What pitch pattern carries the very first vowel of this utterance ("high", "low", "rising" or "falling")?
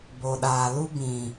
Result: low